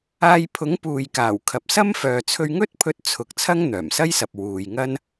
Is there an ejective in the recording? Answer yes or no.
no